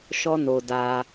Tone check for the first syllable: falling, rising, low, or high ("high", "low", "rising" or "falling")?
high